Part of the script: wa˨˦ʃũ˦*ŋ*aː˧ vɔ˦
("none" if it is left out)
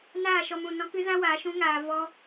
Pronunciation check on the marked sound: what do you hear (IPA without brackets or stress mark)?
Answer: ŋ